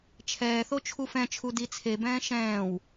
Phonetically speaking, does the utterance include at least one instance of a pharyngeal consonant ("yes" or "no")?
no